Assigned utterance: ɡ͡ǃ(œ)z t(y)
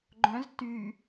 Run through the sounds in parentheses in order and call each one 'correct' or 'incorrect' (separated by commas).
incorrect, correct